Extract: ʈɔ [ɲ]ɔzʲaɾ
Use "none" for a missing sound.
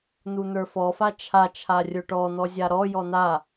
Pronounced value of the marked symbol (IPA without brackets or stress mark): n̪